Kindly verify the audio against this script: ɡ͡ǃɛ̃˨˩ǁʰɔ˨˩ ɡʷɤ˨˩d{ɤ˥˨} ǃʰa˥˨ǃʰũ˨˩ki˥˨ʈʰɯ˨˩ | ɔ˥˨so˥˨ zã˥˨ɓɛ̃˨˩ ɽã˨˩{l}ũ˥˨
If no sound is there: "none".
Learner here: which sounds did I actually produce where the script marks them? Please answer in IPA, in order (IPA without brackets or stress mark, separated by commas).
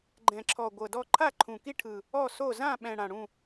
ɔ˥˨, ɽ